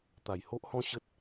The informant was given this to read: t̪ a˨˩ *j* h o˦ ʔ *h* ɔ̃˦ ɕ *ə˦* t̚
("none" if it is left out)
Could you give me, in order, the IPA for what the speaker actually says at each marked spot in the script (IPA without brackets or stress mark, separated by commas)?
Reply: j, h, ə˦